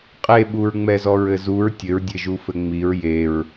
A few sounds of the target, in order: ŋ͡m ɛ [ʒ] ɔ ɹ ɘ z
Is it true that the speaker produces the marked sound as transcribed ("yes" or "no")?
no